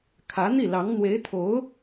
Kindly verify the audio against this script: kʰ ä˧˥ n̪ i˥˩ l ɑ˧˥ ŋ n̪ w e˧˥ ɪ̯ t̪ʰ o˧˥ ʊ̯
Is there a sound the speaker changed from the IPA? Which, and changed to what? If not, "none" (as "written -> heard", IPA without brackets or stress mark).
none